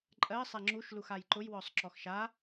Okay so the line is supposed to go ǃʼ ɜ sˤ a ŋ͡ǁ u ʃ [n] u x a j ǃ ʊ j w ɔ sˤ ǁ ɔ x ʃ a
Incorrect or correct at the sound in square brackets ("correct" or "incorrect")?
incorrect